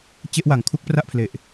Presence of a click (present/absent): absent